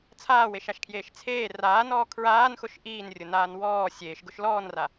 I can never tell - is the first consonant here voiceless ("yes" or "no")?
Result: yes